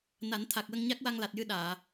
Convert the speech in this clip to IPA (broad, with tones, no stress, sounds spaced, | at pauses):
n a˨˩˦ n t̪ʰ a˨˩ k̚ w ə˧ ŋ ɲ a˦˥ k̚ w a˧ ŋ l a˨˩ t̚ j ɨ˧ ɗ aː˨˩˨